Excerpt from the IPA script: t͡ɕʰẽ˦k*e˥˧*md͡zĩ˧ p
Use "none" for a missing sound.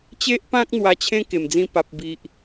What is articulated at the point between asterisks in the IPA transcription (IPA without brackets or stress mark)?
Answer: e˨˩